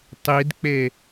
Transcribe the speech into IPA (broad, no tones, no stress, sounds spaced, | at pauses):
tˤ i d k͡p e